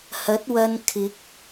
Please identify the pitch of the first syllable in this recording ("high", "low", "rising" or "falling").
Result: rising